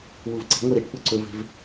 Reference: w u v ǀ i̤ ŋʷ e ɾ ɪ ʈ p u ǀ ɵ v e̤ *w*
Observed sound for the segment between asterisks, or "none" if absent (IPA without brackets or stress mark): v